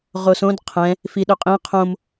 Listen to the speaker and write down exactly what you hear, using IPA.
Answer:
ʁosõd qʰɛ̃ | fiɗøqʼĩ qʰõm

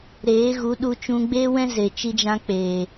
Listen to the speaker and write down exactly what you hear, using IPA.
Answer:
ɾeː˨˦ɣu˨˦ ɗu˧t͡ʃũ˧ ɡ͡beː˦wɛ̃˦ze˨ t͡ʃi˧d͡ʒã˧ k͡peː˨

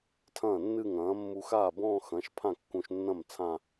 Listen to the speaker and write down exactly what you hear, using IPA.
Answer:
tʰɐ̃ː˥˩nːɨ˥˧ ŋɐ̃ː˩˥mːu˧x aː˥˩bɔ̃ː˥˧xɐ̃˩˥ʃ pʰã˥˩kːũ˧ʃ nːɐ̃˥˩m t͡sʰã˥˧

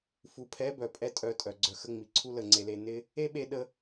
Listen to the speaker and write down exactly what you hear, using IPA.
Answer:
fu˨pʰɛ˨˦bœ˨ pʼɛ˦tʼœ˧tʼœ˨ ɡ͡ǀœ˨xə˧ŋ͡mi˨ ǀʰu˦lə˦˨ŋ͡ǀe˧le˧ nɪ˦ | e˦ɓe˧ ɗə˧

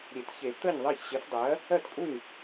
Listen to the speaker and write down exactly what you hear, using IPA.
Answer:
ɾʲe˨˩˦tçe˨˩˦ t̪əː˥˩ɲðˤɜ˥˩ç ɕe˩˥fdˤɜ˩˥ | ɜ˥˩tkʼu˥˩ɲ

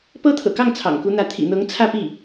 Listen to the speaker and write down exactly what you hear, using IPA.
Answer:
pɤ˥t̪ʰɤ̰˨˩kɑ˥˩ŋ t͡sʰɑ̰˨˩ŋku˧˥n̪ä˧˥ t̪ʰḭ˨˩n̪ɤ˧˥ŋ t͡sʰä˥˧pi˥˩

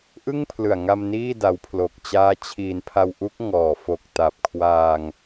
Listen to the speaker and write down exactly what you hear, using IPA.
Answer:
ʔɯ˥˩ŋpʰlɯ˨˩a̯ŋa˧m niː˥˩da˧wpʰlo˨˩k̚t͡ɕaː˦˥ t͡ɕʰiː˩˦npʰa˧wʔu˦˥k̚ ŋɔː˨˩fo˨˩k̚ta˨˩p̚ kʰwaː˧ŋ

